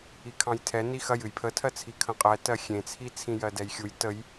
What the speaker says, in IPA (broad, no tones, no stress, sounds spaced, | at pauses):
i kʰ ɑ̃ j tʰ ɛ n i x ɐ j ɨ j pʰ ə tʰ ɜ t͡sʰ i kʰ ə̃ qʼ ɛ t ɜ xʲ ẽ t͡sʰ i t͡sʰ ĩ j ɜ d ɛ j xʲ u j t ə j